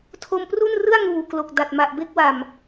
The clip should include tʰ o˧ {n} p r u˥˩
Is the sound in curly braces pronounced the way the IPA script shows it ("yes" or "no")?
no